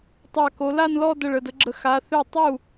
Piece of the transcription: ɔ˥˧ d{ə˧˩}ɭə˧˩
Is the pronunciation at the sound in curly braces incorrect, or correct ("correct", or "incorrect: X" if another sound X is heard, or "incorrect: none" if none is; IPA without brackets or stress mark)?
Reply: correct